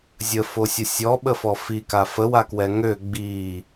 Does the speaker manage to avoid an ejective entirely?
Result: yes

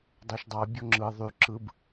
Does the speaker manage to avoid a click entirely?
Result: no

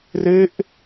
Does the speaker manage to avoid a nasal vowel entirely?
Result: yes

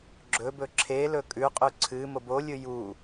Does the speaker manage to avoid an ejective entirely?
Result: no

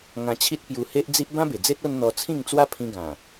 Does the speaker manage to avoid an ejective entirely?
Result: yes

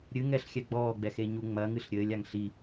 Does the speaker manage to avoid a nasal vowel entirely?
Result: yes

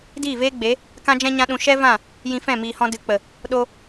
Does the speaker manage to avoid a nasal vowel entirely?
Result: no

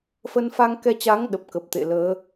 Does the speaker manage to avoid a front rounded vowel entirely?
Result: yes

